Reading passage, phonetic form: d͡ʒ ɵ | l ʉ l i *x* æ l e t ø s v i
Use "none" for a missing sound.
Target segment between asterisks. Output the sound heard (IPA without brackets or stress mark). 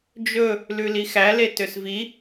x